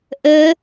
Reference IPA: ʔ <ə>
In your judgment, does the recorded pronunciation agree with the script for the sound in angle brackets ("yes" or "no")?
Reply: yes